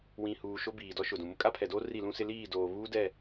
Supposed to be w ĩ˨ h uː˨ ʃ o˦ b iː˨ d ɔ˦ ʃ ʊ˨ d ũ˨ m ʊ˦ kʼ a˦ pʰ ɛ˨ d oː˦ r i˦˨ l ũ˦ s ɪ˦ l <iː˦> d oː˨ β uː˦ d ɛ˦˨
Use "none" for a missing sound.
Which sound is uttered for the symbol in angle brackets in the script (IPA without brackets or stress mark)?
iː˦˨